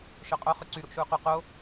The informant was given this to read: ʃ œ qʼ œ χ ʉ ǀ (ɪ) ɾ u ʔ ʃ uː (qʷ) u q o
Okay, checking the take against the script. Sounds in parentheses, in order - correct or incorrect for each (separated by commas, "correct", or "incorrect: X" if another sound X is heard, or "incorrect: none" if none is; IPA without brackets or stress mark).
incorrect: y, incorrect: q